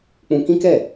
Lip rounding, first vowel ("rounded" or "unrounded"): rounded